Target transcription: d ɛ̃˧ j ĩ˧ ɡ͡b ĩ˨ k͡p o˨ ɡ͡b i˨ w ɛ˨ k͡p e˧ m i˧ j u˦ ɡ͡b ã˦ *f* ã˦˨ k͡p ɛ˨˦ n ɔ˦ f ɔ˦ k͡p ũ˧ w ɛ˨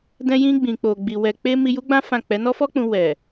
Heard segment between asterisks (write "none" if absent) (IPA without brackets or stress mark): f